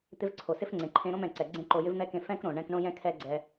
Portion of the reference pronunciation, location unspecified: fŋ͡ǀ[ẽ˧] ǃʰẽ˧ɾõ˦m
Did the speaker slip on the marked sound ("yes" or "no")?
yes